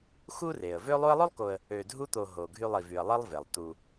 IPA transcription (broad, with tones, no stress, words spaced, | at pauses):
xu˥re˩ə̯vø˥ lˠu˦ə̯lˠo˥lˠko˨ə̯ | ø˨dʱu˦t̪o˨ ɦo˩ɡʱy˨lˠi˩vy˩ə̯ lˠi˦lˠve˩lˠt̪u˨